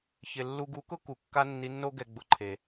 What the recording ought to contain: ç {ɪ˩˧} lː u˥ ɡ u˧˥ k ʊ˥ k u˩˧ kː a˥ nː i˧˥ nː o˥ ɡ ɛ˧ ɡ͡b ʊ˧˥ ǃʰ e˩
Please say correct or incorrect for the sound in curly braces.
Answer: incorrect